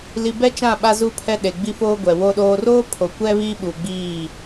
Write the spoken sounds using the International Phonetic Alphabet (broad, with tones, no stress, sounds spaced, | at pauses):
l i˨ b ɛ˦ t͡ʃ ã˦˨ ɓ a˦ z u˦ pʰ ɛ˦ ɗ e˨ ɡ͡b i˦ f oː˦ ɡʷ ɛ˨ w o˨ ɗ oː˨ r oː˦ pʰ o˨ kʷ ɛ˦ β iː˦ ɓ u˨ ɡ͡b iː˦˨